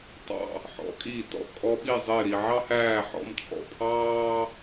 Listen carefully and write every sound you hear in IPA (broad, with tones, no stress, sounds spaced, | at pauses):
tˤ ɑ̰˧˩ | ħ ɔ̰˩˧ kʼ iː˧˩ t ɔ̰˧˩ kʼ ɔ˧ ɓ i˥˧ zˤ ɪː˥˧ ɾ i˧ ʕ ɑ˥ h æː˥˧ ħ ɔ̰˥˧ m t͡sʼ ɔ̰˧˩ pʰ ɑː˥